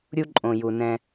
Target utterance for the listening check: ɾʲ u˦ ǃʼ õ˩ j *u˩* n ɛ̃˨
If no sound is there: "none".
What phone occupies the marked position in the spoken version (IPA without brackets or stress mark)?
u˩